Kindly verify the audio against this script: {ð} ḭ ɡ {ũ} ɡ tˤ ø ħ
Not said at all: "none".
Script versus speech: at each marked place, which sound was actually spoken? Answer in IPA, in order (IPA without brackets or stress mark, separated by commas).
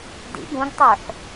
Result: d, ũ